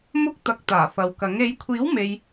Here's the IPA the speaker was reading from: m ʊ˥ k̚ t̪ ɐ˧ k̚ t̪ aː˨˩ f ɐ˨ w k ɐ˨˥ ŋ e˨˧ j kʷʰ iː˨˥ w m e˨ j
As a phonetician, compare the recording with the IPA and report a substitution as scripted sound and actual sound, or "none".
none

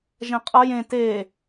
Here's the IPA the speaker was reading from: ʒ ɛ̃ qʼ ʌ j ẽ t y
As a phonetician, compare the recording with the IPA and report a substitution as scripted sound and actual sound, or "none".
y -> e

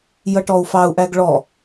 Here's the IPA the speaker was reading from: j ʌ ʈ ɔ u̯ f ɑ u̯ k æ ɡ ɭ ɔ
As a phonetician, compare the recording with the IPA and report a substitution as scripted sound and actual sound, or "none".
k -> ʔ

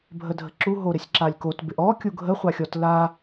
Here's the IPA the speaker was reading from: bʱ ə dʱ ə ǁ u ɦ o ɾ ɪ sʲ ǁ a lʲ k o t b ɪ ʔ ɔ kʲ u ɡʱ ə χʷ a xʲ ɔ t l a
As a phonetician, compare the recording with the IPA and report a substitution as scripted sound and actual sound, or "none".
none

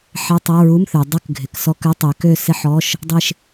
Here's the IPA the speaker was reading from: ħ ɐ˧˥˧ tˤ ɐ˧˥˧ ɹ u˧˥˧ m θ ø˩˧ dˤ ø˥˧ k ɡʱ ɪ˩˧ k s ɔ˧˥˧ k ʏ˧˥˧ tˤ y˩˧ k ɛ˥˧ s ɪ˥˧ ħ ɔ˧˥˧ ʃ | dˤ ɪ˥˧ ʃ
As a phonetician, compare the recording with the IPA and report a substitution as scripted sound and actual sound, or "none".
ɛ˥˧ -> ø˥˧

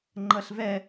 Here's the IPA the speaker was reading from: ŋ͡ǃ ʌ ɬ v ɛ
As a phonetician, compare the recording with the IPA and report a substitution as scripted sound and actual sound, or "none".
none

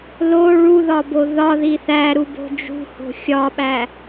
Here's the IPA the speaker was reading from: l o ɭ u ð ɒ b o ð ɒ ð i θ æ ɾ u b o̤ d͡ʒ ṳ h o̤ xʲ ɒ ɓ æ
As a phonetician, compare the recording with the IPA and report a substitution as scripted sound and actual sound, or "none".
none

